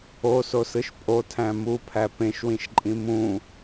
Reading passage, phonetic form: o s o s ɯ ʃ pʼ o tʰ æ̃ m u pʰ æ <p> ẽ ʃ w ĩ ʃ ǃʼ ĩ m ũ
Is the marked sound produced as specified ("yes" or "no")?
yes